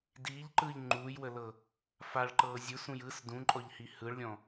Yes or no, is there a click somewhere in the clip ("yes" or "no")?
yes